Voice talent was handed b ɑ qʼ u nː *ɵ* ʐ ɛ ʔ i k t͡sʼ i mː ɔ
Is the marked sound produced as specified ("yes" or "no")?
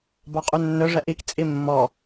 yes